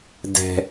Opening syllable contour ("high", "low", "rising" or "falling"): low